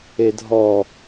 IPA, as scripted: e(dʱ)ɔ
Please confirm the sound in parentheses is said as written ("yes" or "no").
yes